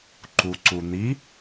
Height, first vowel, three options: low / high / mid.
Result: high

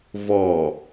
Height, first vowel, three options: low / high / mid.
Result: mid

